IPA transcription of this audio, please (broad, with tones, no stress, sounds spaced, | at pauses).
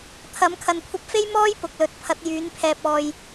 t̪ʰ ɐ˨˥ m kʰ ɐ˨ n kʷʰ ɐ˧ p̚ f e˥ j m ɔː˥ j p ʊ˨˥ k̚ l ɵ˨˥ t̚ pʰ ɐ˨˥ t̚ j yː˨˥ n pʰ ɛː˧ p̚ ɔː˧ j